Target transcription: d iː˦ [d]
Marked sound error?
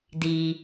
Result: yes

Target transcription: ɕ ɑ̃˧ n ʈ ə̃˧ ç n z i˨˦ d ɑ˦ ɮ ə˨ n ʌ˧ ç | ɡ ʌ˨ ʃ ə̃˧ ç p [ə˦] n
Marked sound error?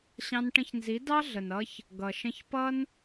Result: yes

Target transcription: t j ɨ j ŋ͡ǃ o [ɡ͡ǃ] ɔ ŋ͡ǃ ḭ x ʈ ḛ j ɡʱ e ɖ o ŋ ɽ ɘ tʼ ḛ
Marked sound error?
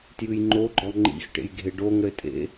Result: no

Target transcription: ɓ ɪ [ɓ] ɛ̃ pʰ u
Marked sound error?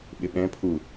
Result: no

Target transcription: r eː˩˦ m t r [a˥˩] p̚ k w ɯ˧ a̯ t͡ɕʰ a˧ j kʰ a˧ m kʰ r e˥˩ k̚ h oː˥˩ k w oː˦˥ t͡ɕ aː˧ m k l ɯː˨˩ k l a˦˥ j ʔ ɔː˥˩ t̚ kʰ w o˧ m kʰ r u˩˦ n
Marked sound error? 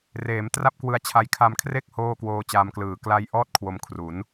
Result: no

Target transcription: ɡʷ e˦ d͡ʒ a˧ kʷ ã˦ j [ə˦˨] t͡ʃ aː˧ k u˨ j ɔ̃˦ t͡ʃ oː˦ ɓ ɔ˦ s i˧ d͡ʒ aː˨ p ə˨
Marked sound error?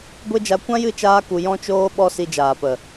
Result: yes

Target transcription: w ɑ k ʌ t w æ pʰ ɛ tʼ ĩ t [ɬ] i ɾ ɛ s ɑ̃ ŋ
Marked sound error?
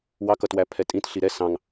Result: no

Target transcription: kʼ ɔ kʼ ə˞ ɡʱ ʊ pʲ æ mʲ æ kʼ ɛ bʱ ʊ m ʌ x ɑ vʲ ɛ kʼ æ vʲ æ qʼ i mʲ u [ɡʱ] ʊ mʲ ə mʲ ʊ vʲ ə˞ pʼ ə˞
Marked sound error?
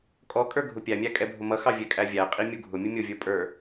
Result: no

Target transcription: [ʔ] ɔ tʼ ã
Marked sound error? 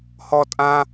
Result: yes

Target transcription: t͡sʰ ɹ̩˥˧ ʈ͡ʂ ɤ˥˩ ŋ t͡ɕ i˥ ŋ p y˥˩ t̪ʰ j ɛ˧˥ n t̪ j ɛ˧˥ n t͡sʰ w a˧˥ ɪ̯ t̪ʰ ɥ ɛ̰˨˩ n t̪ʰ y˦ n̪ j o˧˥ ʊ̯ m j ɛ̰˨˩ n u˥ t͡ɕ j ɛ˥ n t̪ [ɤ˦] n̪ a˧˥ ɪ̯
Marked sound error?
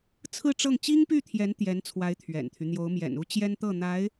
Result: yes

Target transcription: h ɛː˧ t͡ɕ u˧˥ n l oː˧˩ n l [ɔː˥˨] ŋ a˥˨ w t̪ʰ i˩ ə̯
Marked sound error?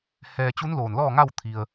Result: no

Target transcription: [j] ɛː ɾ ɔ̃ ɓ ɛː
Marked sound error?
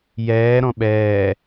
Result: no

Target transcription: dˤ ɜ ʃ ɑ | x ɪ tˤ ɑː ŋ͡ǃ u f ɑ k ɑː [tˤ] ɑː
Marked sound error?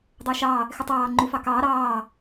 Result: yes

